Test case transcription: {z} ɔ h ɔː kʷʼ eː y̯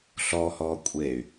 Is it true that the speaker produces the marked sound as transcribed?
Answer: no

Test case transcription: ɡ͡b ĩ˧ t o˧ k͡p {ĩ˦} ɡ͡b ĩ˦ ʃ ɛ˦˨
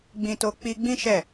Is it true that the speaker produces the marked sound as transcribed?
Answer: no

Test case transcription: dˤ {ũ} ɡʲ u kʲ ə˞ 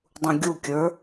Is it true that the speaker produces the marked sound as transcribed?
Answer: yes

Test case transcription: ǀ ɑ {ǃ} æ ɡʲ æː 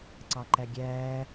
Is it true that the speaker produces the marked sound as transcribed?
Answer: yes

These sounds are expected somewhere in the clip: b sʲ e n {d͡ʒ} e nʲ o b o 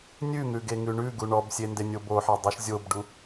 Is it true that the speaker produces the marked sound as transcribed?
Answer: no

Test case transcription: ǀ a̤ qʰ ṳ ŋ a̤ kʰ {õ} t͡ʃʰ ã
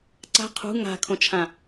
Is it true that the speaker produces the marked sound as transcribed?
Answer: yes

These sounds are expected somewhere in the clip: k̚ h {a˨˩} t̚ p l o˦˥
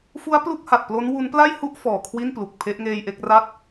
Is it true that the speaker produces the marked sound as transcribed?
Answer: yes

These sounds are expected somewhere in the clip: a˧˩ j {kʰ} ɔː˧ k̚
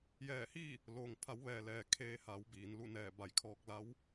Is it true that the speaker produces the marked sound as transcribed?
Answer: yes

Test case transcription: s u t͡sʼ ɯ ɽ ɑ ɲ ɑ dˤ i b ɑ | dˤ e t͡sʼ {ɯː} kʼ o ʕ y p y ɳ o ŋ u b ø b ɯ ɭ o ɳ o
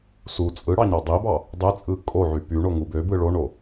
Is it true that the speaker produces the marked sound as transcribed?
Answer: no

